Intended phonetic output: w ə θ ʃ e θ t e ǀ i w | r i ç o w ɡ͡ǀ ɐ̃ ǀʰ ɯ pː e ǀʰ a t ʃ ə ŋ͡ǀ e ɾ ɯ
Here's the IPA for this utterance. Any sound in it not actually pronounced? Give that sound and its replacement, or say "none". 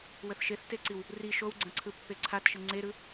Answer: ç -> ʃ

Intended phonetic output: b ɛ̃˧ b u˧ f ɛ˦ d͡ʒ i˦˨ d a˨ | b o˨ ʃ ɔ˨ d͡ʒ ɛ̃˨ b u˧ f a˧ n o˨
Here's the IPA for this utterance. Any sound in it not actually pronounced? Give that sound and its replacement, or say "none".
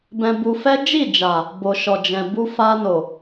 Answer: d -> d͡ʒ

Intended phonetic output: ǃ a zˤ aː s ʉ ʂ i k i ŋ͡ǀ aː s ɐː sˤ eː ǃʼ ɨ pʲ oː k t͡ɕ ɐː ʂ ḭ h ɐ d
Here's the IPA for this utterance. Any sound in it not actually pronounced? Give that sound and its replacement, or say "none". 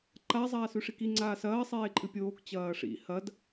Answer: none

